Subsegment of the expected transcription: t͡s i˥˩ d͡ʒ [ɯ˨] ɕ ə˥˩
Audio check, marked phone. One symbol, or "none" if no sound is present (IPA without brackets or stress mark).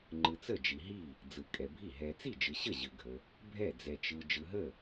ɯ˨